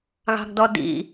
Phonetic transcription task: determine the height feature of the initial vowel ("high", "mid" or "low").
low